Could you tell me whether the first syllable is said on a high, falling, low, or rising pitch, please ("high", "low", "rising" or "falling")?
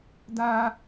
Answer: high